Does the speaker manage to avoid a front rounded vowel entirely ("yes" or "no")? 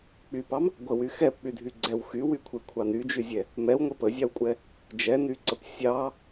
no